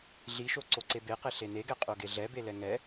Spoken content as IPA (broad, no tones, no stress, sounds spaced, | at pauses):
ɮ i ʃ o ǀ o ǀ e b e q e ɬ e n e ɡ ɛ qʼ o ɡ e ɮ ɛ b e l ɛ ŋ ɛ